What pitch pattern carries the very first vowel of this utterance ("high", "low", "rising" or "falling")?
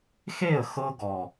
falling